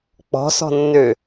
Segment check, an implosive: absent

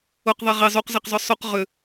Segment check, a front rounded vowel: present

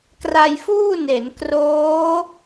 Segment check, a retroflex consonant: absent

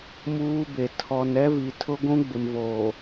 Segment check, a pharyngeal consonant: absent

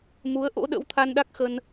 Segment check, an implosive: present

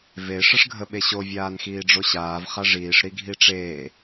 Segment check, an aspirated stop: absent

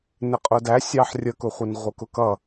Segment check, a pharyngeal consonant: present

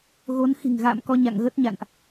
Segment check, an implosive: absent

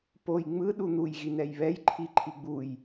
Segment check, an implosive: present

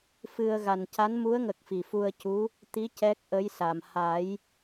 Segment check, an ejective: absent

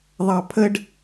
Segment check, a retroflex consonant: present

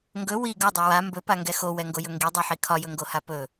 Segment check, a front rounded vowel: absent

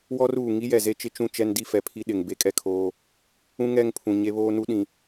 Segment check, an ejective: present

